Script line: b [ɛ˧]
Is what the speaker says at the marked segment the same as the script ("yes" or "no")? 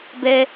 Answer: yes